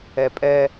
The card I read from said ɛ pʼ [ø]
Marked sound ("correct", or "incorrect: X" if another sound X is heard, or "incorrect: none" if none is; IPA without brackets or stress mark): incorrect: ɛ